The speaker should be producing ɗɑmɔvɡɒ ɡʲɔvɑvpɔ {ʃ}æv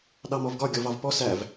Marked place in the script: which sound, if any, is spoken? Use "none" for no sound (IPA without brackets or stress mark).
s